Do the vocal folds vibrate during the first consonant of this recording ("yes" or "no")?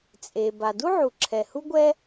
no